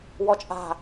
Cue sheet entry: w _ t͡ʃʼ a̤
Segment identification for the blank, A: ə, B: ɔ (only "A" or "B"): B